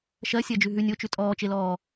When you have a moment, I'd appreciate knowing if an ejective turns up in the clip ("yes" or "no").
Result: yes